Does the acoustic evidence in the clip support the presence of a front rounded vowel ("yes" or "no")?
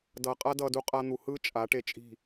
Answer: no